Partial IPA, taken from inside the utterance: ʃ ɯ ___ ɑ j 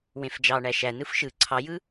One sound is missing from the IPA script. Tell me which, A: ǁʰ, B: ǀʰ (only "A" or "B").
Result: B